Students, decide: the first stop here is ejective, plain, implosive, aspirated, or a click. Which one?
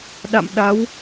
implosive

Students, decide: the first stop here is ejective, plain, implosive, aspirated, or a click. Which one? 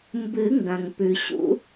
plain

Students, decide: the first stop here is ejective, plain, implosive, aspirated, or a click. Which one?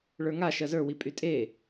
ejective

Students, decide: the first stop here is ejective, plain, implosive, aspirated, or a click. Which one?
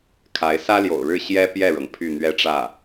aspirated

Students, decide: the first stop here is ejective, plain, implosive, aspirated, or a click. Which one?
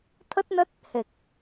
aspirated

